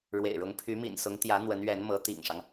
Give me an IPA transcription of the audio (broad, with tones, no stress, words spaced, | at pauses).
ɻwḛ˨˩ɪ̯ɻʊ˧˥ŋ pʰy˧˥mḭ˨˩nsʊ˧˥ŋ t̪jä˧˥ n̪wə˧˥nɥɛ˧˥nmɤ˧˥ t̪ḭ˨˩ŋʂɑ˦ŋ